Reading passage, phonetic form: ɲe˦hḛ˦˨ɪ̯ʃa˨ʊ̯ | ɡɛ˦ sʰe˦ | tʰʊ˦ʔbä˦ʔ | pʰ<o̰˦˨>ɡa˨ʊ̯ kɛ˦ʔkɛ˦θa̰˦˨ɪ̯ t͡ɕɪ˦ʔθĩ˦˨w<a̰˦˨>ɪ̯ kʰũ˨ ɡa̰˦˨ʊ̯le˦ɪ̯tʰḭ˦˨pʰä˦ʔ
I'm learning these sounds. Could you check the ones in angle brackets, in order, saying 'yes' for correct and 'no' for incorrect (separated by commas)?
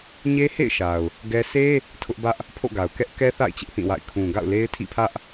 yes, yes